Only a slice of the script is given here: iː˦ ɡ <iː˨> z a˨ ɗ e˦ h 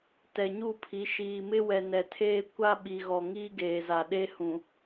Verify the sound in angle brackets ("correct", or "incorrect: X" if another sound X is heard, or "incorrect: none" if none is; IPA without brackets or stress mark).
incorrect: eː˨